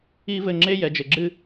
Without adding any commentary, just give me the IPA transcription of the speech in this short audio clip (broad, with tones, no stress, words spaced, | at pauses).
i˦vɘ˧ŋ͡ǁe˦ jɛ˨d͡ʒɘ˨ɡ͡ǁɨ˧